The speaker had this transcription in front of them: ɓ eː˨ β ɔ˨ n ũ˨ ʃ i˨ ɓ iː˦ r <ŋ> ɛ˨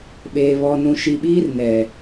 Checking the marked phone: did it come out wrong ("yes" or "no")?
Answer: yes